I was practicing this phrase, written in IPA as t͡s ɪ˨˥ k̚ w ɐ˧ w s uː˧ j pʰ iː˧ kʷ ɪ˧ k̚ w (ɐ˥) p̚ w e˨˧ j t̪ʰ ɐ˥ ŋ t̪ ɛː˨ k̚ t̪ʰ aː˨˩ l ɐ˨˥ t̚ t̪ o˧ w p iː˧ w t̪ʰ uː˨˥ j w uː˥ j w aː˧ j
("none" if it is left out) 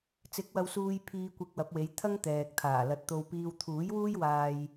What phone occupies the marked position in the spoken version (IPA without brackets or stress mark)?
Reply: ɐ˨˥